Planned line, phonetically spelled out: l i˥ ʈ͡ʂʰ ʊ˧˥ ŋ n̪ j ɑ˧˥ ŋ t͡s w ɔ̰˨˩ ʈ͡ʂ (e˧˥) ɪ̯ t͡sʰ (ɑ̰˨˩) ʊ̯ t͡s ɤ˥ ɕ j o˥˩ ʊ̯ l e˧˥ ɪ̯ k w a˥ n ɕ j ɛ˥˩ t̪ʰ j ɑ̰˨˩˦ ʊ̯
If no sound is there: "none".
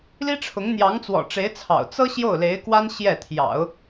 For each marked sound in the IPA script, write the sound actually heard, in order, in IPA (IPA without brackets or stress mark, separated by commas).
e˧˥, ɑ̰˨˩